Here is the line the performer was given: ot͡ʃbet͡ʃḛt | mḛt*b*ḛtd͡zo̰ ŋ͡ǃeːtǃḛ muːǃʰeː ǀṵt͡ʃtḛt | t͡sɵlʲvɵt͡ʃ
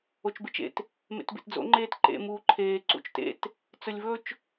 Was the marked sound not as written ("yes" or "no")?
no